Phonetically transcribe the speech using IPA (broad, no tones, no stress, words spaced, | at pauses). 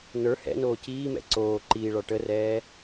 nə˞ hɛ̰noː ciːmɛ̰ ǀoː ǃiːɭɒ ʈərɛː